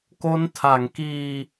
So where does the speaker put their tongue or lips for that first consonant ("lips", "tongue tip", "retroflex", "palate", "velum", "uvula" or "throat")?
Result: velum